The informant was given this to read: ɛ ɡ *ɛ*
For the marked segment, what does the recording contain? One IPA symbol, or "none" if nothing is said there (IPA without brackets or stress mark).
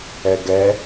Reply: ɛ